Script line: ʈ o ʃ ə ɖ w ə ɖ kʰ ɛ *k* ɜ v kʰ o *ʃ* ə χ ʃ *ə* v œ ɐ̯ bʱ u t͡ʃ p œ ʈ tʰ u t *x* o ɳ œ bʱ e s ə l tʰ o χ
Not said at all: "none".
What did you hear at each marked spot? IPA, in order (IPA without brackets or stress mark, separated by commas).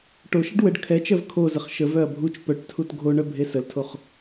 t͡ʃ, z, ə, ɡʱ